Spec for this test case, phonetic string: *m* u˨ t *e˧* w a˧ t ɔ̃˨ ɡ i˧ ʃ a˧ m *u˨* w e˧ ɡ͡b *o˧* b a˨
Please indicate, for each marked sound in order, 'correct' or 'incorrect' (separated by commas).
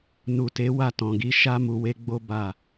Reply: incorrect, incorrect, correct, correct